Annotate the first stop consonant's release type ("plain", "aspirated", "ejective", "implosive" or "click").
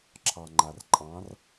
click